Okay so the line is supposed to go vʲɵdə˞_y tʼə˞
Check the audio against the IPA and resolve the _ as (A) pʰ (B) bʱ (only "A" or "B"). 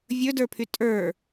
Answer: A